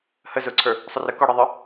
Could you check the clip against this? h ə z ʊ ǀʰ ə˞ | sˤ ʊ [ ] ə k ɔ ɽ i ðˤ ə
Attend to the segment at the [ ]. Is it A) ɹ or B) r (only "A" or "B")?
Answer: B